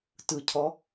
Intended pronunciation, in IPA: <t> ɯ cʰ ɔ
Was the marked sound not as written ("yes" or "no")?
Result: no